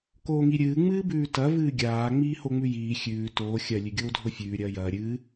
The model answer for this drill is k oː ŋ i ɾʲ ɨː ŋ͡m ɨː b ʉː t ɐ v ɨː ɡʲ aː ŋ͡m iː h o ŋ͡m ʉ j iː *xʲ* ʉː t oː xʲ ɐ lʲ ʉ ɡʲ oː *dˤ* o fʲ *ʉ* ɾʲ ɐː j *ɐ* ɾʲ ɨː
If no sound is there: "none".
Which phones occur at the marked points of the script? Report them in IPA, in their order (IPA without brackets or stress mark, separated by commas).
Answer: xʲ, dʱ, ʉː, ɐː